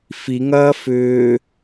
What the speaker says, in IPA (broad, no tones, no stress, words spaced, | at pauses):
fiŋɐː fʏː